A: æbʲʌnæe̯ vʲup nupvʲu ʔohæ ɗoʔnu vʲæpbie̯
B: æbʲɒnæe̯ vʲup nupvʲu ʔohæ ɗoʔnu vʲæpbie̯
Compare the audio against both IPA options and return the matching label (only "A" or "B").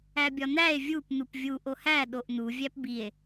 B